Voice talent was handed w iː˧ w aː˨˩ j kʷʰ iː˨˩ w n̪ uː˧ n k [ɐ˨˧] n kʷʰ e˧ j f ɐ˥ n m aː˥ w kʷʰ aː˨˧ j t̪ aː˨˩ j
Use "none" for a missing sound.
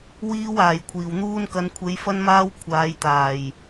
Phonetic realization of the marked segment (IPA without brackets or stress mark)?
ɐ˨˧